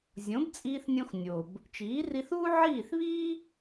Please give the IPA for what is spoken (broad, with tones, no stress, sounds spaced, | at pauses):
zʲ õ˩˥ b t͡sʼ iː˧ θ nʲ õ˧ x nʲ o˩ b | t͡ʃ iː˩˥ r i˧ θ uː˥ ʕ iː˥˩ θ β iː˥